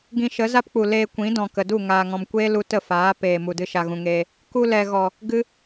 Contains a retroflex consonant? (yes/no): no